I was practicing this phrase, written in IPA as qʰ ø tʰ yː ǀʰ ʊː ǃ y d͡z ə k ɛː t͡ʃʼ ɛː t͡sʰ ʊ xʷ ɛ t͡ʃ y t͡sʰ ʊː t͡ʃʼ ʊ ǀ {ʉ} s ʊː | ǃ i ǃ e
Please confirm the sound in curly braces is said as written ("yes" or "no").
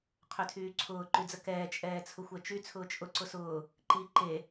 no